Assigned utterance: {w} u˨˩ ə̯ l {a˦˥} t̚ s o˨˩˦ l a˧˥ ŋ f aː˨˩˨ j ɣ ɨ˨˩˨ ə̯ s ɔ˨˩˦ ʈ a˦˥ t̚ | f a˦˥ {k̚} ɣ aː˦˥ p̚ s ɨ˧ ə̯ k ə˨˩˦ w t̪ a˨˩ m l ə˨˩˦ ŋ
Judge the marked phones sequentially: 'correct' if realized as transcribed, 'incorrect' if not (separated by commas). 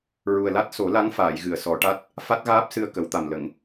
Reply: incorrect, correct, incorrect